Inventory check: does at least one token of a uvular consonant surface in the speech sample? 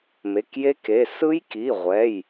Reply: yes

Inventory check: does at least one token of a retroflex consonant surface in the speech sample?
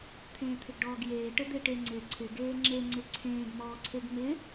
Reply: yes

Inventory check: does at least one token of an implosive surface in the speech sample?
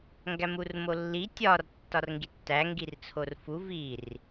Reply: no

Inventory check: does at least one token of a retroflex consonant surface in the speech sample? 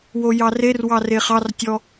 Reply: no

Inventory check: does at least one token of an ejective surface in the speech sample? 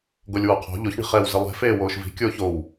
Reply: no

